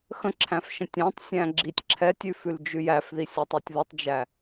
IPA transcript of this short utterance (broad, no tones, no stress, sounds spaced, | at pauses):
x ə̃ ǁʰ æ̃ f ʃ ə̃ tʲ æ̃ tˤ sʲ æ̃ ɡ͡ǁ i tʲ ǁʰ ɛ tʲ ʉ f ʉ l d͡ʒ ʉ j æ f ð i sʲ æ tˤ i tʲ ð ɯ tˤ d͡ʒ æ